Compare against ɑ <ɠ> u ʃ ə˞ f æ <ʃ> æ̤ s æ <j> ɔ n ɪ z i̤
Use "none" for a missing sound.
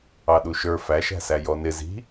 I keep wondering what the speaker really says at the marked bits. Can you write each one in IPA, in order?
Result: ɗ, ʃ, j

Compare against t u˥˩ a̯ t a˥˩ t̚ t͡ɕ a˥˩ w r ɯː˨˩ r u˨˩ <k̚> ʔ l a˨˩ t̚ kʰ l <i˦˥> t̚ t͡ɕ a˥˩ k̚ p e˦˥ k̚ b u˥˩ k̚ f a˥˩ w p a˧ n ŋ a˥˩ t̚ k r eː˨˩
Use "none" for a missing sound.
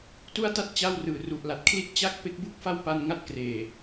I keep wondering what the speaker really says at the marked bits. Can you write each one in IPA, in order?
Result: none, i˥˩

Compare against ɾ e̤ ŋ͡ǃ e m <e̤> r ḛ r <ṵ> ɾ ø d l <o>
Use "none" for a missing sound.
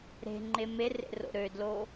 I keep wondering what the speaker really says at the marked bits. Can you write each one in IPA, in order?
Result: e, o̰, o

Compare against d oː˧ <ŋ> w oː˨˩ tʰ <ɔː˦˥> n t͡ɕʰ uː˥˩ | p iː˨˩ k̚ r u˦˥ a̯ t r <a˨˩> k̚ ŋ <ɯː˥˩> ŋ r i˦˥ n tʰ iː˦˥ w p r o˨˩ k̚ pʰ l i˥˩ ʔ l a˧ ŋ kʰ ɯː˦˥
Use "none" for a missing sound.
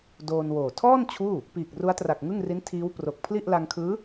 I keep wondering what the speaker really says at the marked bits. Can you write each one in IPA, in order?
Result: n, ɔː˥˩, a˨˩, ɯ˥˩

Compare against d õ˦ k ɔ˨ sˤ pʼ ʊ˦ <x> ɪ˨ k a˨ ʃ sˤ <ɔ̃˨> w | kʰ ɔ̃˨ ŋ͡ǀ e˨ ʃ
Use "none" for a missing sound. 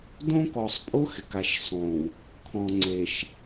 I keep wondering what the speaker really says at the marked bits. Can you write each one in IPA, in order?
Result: x, õ˨

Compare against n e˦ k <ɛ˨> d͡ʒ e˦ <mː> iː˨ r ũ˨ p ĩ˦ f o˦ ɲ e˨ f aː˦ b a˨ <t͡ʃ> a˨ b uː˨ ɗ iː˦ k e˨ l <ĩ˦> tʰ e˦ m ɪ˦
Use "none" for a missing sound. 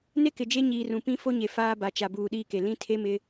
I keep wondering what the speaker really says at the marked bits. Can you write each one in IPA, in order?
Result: ɪ˨, ɲ, t͡ʃ, ĩ˦

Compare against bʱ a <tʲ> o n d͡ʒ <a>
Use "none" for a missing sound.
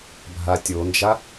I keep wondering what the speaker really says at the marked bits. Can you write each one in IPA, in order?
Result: tʲ, a

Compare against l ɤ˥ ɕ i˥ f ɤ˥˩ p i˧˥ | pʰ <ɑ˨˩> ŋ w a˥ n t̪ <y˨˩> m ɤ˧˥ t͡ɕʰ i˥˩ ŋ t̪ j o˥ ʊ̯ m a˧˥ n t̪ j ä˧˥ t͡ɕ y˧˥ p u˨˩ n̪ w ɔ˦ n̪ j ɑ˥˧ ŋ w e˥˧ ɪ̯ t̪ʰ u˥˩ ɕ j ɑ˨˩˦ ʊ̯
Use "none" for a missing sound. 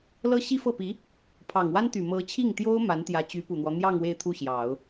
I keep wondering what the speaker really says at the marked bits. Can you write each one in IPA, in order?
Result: ɑ˨˩, y˨˩

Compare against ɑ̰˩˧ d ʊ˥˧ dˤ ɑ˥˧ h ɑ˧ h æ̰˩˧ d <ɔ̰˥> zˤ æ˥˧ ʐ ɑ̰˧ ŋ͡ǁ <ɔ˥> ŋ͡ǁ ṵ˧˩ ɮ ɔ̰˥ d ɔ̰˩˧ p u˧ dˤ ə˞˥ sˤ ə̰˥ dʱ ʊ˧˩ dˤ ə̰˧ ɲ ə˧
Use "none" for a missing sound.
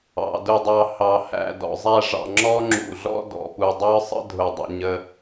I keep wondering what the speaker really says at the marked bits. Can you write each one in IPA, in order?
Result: ɔ̰˩˧, ɔ˥

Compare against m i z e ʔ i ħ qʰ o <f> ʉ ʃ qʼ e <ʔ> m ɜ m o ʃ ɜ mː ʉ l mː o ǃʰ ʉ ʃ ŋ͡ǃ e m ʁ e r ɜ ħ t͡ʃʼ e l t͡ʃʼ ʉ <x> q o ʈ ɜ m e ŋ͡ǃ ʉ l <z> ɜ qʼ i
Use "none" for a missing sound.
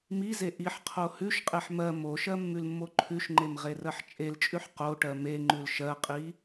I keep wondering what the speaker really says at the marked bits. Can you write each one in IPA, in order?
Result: h, ħ, ħ, ʃ

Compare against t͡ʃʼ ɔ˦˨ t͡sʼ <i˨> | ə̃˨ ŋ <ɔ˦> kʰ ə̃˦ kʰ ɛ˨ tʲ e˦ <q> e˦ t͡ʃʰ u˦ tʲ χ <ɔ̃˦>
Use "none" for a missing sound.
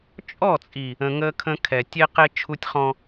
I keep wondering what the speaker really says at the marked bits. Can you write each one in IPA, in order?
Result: i˨, ə˦, q, ɔ̃˦

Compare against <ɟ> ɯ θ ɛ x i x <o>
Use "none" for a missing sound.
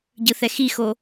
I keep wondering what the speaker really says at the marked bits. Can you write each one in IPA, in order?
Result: ɟ, o

